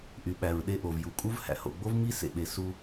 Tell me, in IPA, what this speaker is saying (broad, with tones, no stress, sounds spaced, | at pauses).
ʔ y˩ ɓ æ˩ ɹ ɗ e˧ ʔ o˩ v j u˩ kʼ u˥ v h æ̰˩ h o̰˩ ɡ͡b o˥ v m i˥ s ḛ˩ ɓ e˩ s u˧